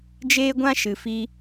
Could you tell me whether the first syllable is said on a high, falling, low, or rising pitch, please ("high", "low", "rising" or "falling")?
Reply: high